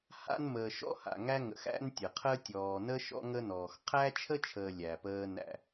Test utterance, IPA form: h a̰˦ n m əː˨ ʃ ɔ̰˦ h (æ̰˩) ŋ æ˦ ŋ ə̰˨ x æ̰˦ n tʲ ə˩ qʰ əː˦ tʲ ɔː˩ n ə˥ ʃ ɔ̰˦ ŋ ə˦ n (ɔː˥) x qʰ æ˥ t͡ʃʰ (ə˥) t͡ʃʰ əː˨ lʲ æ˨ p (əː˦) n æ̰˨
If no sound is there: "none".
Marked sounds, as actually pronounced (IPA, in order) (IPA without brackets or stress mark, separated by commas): a̰˩, ɔː˩, ə˥, əː˦